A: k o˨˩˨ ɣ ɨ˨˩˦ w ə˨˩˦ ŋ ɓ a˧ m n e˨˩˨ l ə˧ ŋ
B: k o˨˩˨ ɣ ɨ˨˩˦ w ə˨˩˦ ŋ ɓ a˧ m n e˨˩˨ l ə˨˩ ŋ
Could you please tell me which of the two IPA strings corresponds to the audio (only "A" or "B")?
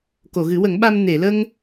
A